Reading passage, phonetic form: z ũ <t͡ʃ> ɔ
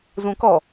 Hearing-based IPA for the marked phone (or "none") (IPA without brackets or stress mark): k